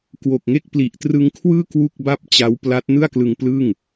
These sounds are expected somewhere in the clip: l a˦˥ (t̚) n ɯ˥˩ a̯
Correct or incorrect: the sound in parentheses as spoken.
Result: correct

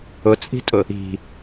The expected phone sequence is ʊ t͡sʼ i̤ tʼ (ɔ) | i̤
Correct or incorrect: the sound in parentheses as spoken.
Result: incorrect: ʊ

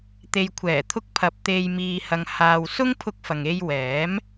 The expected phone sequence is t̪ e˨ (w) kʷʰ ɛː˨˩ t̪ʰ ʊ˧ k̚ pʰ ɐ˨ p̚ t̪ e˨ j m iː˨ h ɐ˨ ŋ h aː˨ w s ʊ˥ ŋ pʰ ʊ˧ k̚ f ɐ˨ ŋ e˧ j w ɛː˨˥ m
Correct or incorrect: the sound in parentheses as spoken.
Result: incorrect: j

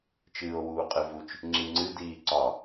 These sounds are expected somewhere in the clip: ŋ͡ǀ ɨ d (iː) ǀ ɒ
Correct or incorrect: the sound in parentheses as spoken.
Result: correct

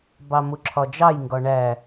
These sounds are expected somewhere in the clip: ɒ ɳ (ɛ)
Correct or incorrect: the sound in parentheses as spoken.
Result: incorrect: æ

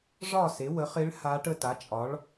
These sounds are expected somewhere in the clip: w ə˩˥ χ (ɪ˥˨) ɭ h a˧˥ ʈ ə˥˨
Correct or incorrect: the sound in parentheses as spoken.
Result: incorrect: ɪ˧˥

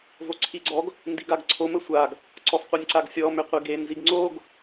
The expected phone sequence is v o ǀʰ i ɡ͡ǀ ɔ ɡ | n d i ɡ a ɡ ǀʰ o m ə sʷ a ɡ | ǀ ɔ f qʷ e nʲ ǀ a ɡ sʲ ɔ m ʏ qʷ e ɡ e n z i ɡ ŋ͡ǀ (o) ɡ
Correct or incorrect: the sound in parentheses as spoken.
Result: correct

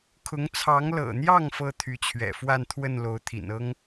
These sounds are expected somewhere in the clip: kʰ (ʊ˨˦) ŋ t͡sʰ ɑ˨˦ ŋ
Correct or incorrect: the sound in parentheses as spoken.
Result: correct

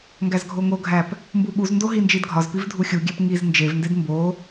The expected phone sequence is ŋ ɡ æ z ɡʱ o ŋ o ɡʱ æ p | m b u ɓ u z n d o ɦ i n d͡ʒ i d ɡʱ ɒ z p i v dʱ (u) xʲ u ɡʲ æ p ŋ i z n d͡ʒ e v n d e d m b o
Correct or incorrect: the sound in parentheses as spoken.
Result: correct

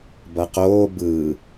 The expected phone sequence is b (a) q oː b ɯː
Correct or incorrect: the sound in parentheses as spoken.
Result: incorrect: ʌ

